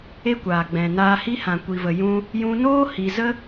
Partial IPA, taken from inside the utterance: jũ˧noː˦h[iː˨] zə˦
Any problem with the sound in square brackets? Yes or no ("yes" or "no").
yes